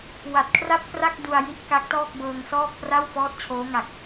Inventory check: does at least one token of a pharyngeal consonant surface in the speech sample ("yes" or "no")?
no